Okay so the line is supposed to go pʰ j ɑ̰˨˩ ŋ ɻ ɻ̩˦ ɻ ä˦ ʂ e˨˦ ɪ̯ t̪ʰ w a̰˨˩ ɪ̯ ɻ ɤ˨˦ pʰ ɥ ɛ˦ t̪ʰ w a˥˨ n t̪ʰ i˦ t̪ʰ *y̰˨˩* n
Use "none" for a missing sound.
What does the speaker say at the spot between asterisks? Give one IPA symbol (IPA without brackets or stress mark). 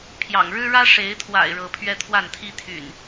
y̰˨˩